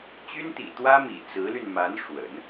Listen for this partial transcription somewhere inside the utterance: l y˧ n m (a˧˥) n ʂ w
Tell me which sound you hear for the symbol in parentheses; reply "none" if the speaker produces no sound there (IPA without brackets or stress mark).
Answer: a˧˥